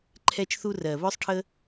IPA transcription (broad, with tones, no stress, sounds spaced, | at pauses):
ǃʰ ɛ˧ t͡ʃ θ u˧ r ɜ˨ β œ˦ sˤ ʈʰ ə˦